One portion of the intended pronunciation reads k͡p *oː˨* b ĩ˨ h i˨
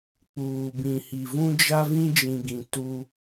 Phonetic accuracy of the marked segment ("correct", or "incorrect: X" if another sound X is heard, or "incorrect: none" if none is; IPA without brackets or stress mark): incorrect: uː˨